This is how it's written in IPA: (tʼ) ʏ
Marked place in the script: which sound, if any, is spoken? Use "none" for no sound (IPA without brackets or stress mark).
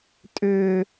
tʼ